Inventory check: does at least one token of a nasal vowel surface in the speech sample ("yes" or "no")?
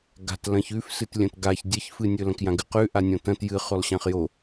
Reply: yes